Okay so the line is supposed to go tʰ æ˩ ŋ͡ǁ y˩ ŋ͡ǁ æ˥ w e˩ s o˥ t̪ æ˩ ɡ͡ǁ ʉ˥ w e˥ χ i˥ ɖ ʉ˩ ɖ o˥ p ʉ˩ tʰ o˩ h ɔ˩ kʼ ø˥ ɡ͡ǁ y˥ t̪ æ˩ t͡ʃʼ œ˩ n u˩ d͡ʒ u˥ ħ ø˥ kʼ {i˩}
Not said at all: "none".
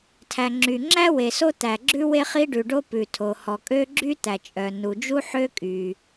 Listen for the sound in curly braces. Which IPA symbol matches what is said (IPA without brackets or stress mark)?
y˩